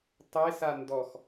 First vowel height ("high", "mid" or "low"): mid